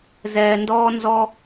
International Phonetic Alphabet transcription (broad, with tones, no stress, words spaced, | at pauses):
zɛː˧ndɔː˥nzɔ˥